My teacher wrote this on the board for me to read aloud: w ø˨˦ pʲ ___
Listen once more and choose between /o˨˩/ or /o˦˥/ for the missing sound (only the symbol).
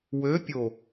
o˨˩